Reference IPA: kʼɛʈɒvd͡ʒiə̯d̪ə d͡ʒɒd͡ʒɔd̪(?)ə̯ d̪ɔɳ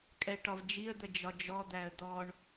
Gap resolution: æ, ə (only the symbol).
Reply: æ